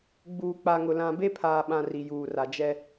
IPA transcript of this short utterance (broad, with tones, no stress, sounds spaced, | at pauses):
ɡ͡b uː˨ k͡p a˨ ŋ ʊ˨ l ã˨ b e˦ pʰ aː˨ ɓ ã˨ r i˨ j uː˨ r a˨ d͡ʒ ɛ˦